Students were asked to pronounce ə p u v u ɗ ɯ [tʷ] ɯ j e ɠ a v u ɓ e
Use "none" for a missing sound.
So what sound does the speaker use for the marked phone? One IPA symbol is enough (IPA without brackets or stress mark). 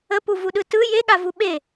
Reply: t